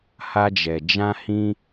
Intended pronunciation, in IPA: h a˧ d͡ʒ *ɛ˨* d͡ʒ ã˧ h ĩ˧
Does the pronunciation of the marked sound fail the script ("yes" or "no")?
no